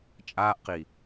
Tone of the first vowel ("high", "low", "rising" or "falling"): high